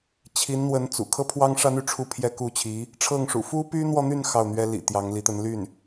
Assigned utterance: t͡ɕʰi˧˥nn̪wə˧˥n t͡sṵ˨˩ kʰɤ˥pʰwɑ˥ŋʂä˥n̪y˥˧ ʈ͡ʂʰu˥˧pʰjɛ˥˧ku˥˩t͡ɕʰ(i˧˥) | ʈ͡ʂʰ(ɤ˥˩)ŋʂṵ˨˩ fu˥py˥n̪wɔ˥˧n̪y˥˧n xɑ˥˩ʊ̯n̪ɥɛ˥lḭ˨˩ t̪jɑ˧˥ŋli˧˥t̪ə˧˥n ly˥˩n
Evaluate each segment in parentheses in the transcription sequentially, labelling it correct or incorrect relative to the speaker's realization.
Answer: correct, correct

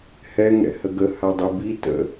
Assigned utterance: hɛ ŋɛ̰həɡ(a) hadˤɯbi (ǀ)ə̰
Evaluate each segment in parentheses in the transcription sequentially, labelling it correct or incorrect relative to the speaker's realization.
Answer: incorrect: ə, incorrect: t

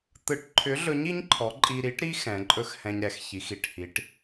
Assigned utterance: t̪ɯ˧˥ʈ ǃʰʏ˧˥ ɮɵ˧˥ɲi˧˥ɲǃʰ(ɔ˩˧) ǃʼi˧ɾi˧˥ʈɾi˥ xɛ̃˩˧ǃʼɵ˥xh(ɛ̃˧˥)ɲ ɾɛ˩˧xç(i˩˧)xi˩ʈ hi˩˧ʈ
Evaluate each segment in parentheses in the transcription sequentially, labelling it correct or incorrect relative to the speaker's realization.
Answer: correct, incorrect: ɛ̃˧, correct

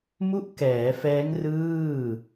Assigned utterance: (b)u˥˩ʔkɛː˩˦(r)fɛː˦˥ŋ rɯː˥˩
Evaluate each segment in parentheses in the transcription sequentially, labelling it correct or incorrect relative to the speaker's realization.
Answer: incorrect: m, incorrect: none

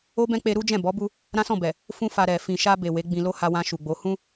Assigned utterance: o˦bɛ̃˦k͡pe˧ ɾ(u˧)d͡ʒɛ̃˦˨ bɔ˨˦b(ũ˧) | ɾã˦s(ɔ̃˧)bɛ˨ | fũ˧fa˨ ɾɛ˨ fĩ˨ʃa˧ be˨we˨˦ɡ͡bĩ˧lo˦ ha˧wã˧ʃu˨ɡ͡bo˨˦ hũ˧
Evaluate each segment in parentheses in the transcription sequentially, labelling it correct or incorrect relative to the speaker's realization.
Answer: incorrect: u˦, incorrect: u˧, incorrect: ɔ̃˦˨

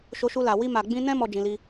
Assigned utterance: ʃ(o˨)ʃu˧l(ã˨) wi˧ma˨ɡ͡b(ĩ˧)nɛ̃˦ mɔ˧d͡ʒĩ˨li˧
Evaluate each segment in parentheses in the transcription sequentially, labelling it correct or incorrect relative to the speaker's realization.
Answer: incorrect: o˧, incorrect: a˨, correct

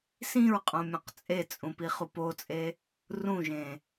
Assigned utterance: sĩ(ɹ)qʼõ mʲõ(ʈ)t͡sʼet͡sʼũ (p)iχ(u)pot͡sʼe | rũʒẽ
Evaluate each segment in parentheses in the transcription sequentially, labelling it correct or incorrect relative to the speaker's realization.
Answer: correct, incorrect: q, correct, correct

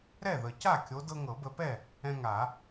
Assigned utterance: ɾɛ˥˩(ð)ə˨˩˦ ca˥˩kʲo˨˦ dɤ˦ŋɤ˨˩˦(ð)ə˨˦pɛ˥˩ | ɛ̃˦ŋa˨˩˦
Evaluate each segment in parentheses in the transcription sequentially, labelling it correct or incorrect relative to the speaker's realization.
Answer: correct, incorrect: b

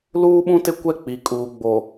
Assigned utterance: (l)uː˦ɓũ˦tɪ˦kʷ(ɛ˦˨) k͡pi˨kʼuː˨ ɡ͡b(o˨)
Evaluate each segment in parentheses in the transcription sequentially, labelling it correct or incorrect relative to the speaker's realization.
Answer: correct, correct, correct

